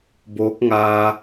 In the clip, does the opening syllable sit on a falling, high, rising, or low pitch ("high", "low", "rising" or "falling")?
rising